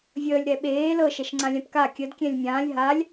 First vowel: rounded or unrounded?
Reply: unrounded